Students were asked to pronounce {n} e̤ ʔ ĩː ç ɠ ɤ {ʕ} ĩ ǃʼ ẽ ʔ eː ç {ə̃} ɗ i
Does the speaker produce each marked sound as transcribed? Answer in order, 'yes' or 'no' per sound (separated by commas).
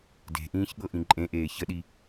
no, no, no